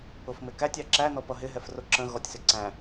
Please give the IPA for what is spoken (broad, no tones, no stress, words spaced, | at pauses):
ʊfmɪkætʲ ɑǁæ nɔpʌɦɪɦɛf rʊǁə̃ ɣɔtʲsɪǀæ̃